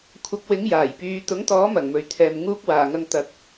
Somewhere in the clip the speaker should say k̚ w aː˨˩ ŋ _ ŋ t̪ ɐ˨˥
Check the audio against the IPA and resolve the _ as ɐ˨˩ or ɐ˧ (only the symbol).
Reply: ɐ˧